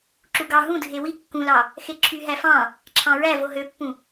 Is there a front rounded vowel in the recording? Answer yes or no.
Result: yes